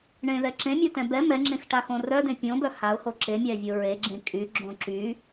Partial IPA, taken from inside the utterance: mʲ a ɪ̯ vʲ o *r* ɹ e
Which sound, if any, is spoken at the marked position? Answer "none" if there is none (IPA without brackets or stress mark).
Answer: none